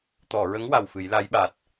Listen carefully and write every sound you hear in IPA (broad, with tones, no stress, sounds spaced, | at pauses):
t̪ ɔ˨˩˨ ɹ ə˧˥ ŋ w a˨˩ w f ɨ˨˩˦ j l a˧˥ j ɓ a˨˩ t̚